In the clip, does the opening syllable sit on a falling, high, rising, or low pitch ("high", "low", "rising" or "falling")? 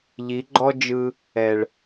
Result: rising